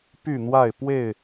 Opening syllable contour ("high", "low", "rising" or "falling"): falling